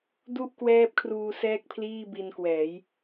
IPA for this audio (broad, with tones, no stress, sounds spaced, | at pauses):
d u˥˩ ʔ k w ɛː˦˥ p̚ kʰ r uː˧ s ɛː˥˩ k̚ pʰ l iː˥˩ b i˧ n k w ɛː˩˦ j